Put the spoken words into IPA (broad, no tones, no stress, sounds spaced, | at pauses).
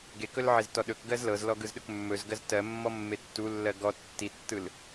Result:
ɡ e k ɵ l ʕ e z t ɔ ɗ ɵ k ɡ ɜ z l ɤ z l ɔ ɡ ɯ z ɗ ɵ k mː ɵ z ɡ ɜ z t ɜ mː ɔ mː e tː u lː ɜ ɡ ɔ tː i tː ɯ l